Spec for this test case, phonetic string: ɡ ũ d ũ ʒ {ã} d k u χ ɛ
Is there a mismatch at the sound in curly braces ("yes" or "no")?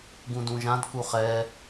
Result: no